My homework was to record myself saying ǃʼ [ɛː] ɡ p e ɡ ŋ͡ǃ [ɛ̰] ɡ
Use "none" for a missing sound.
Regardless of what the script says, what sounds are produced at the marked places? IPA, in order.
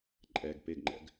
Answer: ɛ, ɛ̰

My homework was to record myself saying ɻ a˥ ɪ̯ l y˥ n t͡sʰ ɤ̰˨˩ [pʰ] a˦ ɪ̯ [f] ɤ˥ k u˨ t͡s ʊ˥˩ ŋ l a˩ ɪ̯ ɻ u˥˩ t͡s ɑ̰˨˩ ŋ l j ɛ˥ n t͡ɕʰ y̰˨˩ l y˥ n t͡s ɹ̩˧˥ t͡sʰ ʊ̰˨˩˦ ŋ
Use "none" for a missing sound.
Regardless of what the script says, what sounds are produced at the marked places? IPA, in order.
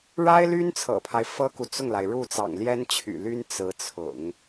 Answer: pʰ, f

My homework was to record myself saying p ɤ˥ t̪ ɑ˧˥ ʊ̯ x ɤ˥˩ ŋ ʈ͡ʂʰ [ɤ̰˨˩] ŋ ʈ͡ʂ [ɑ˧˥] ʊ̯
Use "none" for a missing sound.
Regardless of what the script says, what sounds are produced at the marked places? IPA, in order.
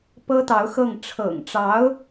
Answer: ɤ̰˨˩, ɑ˧˥

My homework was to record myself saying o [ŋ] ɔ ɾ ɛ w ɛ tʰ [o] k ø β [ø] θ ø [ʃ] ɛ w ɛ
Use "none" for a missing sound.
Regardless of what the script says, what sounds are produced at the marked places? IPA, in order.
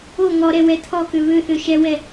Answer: ŋ, ɔ, ø, ʃ

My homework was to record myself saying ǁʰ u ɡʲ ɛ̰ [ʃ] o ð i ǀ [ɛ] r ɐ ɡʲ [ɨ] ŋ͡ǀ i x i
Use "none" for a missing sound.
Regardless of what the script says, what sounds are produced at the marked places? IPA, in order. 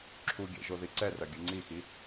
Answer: ʒ, ɛ, ɨ

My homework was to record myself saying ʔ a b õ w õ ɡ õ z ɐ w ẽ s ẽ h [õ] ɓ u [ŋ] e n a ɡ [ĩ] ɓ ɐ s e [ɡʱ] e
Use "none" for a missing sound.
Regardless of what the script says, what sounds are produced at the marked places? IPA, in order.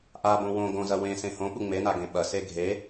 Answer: õ, ŋ͡m, ẽ, ɡʱ

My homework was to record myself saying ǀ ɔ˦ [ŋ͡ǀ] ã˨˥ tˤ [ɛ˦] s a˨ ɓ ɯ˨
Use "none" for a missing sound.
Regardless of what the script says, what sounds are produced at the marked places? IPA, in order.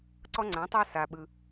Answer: ŋ͡ǀ, ɛ˦

